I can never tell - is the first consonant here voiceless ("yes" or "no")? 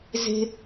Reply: no